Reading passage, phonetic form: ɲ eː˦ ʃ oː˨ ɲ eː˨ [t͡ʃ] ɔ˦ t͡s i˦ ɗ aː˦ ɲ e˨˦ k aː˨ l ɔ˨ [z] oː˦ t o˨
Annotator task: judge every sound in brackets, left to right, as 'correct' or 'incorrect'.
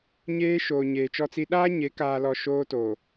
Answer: correct, incorrect: ʃ

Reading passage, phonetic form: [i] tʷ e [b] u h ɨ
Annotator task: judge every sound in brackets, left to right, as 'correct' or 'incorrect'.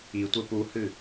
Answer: correct, incorrect: p

